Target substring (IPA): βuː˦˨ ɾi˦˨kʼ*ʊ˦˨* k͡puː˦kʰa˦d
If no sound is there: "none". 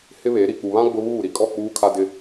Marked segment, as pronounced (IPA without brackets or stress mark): ɔ˦˨